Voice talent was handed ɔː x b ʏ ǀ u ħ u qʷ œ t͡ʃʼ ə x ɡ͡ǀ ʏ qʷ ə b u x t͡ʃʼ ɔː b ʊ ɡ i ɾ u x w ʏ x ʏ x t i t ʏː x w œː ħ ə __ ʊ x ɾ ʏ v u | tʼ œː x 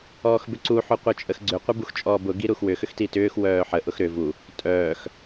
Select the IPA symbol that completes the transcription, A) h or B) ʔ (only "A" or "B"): B